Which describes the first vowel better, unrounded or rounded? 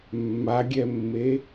unrounded